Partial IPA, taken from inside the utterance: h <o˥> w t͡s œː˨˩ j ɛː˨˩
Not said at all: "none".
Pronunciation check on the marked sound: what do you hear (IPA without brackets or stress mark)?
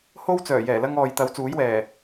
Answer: o˥